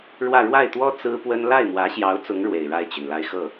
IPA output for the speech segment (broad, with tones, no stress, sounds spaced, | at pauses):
ɻ w ä˥˧ ɻ w a˥˩ ɪ̯ t̪ w ɔ˥ t͡s ɹ̩˥ p w ə˥ n l a˥˩ ɪ̯ m w ä˧˥ ɕ j ɑ˧˥ ʊ̯ t͡s ʊ˧˥ ŋ ɻ w e˨˩ ɪ̯ ɻ a˥˩ ɪ̯ t͡ɕ y˩ n l a˧˥ ɪ̯ x ɤ˥˩